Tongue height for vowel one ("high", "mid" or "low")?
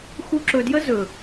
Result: high